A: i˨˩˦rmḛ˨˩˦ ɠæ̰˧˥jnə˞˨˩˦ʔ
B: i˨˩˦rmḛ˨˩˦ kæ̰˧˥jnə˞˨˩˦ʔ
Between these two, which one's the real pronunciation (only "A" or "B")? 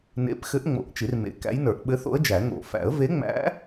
B